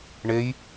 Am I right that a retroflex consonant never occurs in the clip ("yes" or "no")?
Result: no